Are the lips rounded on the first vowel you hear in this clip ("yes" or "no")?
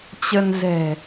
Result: no